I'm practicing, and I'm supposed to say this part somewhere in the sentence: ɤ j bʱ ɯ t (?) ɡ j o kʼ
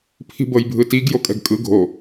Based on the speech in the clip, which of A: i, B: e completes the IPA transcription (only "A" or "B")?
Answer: A